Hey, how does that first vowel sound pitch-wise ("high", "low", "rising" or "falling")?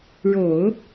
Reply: low